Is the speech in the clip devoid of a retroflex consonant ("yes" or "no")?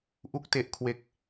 yes